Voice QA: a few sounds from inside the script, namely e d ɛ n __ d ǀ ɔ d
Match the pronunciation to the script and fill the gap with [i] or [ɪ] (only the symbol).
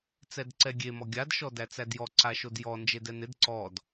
ɪ